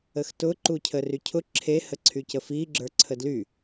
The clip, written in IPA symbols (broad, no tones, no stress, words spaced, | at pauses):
əxtʊ ǃucʰərycʰʊ ǁʰe həǀʰycəfi ɡ͡ǁə˞ǀʰədly